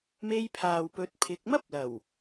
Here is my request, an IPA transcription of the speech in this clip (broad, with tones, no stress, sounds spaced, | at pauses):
m e˧ j pʰ aː˨ w p ɵ˨˥ t̚ pʰ ɪ˨˥ k̚ m ɐ˥ p̚ l ɐ˨˩ w